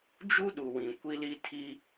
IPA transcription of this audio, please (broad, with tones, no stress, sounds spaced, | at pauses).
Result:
d͡ʒ u˦ ɗ u˨ w ĩ˨ kʷ i˦ l i˦ tʰ i˦